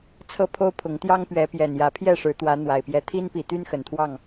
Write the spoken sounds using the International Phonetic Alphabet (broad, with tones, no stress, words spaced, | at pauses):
t͡sʰɤ˦pʰo˦ʊ̯pʰʊ˨˦ŋt̪jɑ˦ŋ pɥɛ˨˦pjɛ˨˩n jä˨˦pʰjɛ˥˨ ʂɻ̩˨˦t̪wä˨˦n̪wa˨˩ɪ̯pjɛ˨˦ t̪ʰi˦npi˨˩t̪y˦n xə˨˩nt̪ʰwɑ˥˨ŋ